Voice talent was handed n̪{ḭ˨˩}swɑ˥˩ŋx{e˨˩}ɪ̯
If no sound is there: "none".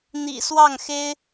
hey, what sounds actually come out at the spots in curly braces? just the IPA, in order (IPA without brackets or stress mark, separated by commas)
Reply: ḭ˨˩, e˥